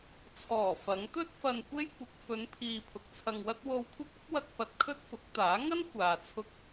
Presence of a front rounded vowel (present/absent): absent